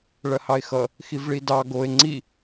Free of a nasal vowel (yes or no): yes